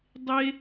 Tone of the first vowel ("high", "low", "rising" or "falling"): high